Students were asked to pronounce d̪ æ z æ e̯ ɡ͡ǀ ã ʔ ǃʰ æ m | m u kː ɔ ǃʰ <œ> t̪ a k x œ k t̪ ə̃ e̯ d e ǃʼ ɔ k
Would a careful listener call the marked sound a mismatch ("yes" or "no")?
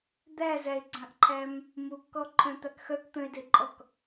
yes